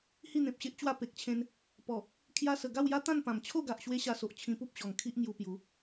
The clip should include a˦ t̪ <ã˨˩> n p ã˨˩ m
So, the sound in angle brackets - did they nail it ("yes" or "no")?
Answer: no